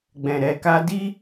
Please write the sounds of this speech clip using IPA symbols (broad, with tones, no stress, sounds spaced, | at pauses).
ɡ͡b ɛ̃˧ ɾ ɛ˧ k a˦ d i˦